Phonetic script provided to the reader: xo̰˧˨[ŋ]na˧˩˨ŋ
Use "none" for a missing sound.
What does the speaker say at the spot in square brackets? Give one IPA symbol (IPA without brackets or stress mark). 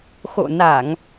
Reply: none